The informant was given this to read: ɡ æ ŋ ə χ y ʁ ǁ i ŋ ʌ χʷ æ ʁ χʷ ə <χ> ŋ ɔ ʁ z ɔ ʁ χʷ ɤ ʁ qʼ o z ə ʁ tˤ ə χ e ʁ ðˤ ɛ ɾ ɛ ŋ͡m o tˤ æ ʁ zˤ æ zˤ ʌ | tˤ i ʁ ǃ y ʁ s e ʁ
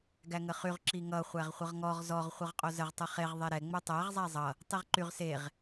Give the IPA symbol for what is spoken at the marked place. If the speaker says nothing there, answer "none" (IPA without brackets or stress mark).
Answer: ʁ